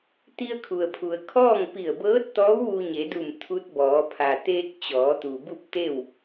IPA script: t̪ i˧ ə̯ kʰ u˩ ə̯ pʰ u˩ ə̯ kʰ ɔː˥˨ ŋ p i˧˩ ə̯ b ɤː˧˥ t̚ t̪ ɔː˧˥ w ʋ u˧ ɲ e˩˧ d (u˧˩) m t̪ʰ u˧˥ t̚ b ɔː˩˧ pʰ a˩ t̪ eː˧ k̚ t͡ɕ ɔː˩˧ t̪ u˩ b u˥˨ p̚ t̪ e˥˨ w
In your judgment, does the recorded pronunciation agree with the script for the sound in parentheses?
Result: yes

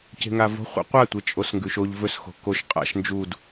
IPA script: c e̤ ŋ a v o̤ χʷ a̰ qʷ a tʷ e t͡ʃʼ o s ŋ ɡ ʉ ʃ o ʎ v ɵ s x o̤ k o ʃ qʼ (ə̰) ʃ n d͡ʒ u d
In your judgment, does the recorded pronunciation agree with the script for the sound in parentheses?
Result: no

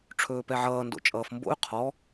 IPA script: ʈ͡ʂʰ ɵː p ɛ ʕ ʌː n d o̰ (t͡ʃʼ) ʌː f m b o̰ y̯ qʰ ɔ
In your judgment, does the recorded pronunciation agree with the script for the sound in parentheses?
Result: yes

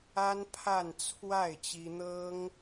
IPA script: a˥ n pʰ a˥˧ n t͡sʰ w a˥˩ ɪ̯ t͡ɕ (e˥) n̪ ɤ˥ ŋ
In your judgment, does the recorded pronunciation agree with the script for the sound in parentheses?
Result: no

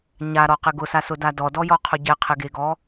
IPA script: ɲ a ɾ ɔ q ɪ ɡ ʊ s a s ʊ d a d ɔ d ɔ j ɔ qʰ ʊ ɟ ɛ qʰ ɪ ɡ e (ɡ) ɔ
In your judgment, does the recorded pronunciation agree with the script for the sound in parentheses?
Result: yes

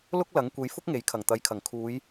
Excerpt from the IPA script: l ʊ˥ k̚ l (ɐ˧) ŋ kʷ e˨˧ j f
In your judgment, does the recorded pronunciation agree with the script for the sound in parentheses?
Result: no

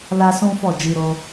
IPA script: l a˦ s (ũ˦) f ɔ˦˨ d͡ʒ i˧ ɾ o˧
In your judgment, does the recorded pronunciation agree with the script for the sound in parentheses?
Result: yes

